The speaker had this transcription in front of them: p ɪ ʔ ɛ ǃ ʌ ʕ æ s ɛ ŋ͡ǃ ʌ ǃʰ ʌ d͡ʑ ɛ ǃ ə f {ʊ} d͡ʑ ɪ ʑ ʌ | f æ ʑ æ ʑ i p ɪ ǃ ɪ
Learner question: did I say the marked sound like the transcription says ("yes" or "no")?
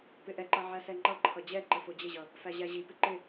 yes